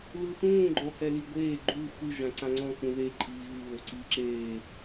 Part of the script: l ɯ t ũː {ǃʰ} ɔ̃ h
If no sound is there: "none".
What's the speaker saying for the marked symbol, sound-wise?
ɡ͡ǃ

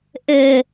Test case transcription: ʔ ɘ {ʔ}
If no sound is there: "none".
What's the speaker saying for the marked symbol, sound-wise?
none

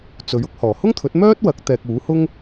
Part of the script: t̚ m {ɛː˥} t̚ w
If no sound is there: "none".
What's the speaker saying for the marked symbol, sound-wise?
œː˥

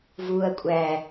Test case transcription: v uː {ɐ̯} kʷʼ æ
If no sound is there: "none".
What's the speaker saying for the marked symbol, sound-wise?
ɐ̯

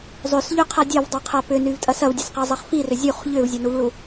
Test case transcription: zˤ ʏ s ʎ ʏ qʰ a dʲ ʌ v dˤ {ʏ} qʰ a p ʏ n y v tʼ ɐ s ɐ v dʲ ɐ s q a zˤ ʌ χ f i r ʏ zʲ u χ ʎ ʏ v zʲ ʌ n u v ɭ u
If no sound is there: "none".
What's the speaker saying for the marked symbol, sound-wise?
u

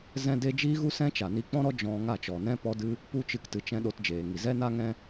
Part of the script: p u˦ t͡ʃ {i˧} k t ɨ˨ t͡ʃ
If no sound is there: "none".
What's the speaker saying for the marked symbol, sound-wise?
ɨ˧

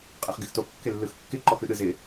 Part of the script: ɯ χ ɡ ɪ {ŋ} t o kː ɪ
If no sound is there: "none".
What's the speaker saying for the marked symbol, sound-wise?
x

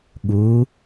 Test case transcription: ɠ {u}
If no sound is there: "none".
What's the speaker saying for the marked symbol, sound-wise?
u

